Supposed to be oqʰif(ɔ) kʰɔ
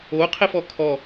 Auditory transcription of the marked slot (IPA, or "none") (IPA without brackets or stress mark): ɔ